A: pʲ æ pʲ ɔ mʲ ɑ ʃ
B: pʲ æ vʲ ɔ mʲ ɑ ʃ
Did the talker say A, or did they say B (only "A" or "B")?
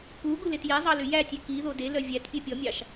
A